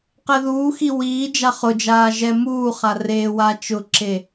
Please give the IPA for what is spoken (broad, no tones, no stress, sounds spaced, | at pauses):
q ɛ ð uː x i w iː d͡ʒ a χ ʊ d͡ʒ aː ʒ ɛ m uː χ a r eː w a t͡ʃ ʊ ǁ e